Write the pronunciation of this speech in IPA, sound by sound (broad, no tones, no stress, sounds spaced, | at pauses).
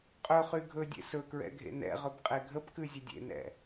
qʼ ɵ χ y ɡʱ ɵ dʲ ḛ s ɵ k ɹ ɛ̰ ɡʱ ḛ n ɛ̰ ʁ ɵ b qʼ e ɡʱ ə p k ʉ zʲ ə dʲ ḛ n ɛ̰